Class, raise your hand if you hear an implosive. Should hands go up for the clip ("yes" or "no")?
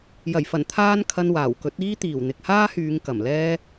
no